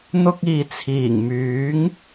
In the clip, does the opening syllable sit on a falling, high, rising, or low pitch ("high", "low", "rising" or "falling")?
high